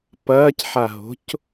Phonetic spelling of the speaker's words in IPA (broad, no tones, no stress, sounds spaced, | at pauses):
p ɐː c ħ a ɦ o̤ c